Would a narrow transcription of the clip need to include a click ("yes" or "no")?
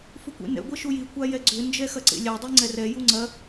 yes